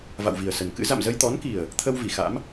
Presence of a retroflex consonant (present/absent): absent